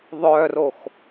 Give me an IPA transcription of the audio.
ðˤ œ r o x

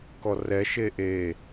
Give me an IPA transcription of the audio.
k ɔ r ɛ ʃ e ʔ e

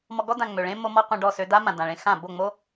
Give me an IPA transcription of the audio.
m ɔ˧ ɡ ɔ˦ d ã˧ ŋ͡m ø˨ ɭ ẽ˦ m o˦ m ɔ˦ qʷ ẽ˧ ɖ ɔ˦˨ s ø˧ d a˦ m ã˨ d ã˨ ɭ ẽ˧ x ã˦˨ b o˦˨ ŋ͡m o˦

